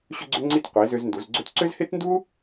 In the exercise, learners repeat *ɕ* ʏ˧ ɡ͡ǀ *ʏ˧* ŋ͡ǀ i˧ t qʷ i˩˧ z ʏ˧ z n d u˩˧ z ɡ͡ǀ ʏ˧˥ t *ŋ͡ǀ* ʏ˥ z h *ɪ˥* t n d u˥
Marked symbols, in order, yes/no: yes, yes, no, yes

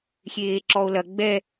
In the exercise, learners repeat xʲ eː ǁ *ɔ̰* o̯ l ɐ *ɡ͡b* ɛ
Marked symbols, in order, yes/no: no, yes

